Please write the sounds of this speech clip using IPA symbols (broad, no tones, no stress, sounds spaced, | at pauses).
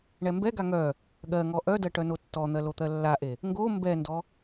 ɳ ɛ m b ɛ ɡ a ŋ œ | ɠ ɜ ŋ ɔ ʔ œ d ɜ ʈ œ n o tː ɔ n̪ ɜ l o t̪ ɜ lː a ʔ e | ŋ ɡ o m b ɛ n d ɔ